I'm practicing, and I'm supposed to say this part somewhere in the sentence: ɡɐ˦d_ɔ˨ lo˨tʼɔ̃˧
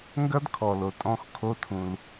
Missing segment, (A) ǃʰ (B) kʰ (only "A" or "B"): B